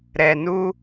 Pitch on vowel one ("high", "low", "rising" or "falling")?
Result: low